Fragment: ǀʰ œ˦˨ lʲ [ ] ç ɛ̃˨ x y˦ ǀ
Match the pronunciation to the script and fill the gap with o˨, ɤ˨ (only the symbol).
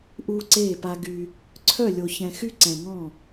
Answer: o˨